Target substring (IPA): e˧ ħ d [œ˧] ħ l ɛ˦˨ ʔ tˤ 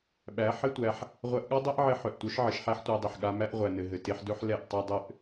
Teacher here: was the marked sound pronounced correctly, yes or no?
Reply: no